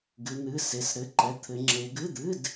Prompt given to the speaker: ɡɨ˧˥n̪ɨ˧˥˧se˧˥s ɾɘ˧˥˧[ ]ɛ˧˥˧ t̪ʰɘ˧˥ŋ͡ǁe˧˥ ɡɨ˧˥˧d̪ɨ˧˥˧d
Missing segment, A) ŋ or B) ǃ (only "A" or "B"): B